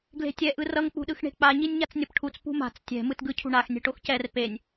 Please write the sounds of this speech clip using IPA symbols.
ɡ l e̤ tʲ ɛ ʔ ɯ r ʌ ŋ k͡p ṳ ɗ ɯ x ɳ e̤ k͡p a ɲ i nʲ ɲ a t͡s nʲ ʌ p ʈʰ u t͡s p ṳ m a̤ t͡s tʲ ɛ̤ m ɯ t ɡ ɯ cʰ ṳ ɳ a x nʲ ɛ̤ ʈ o x c ɛ r p e nʲ

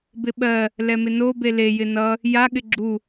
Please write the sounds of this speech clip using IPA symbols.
b ɪ ɓ ɜ | l ɛ m ɪ n o b e l e j ɪ n ʌ | j a ɠ ɪ ɡ͡ǁ u

